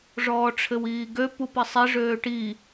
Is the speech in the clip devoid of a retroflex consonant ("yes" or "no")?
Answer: no